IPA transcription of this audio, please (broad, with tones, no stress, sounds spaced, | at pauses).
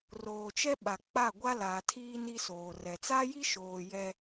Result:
r oː˨ t͡ʃ ɛ˦ ɓ a˨ k͡p a˦˨ ɡʷ a˦ l a˨ tʰ iː˦ n i˦ s oː˨ r ɛ˨ t͡s a˦ j i˦ ʃ oː˨ j ɛ˦